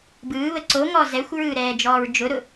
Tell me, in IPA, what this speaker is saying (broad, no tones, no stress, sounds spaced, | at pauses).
b ɯː β ə ǀ o ŋ ɔ z ɛ xʷ ɹ ɯː ɾ ɛː d͡ʒ ɔː ɹ d͡ʒ ʊ ɾ ʊ